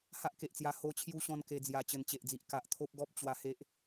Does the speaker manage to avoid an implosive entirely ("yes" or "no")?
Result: yes